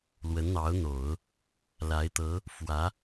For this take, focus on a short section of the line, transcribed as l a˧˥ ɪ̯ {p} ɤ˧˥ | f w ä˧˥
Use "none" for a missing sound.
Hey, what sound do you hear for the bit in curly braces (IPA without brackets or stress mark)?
t̪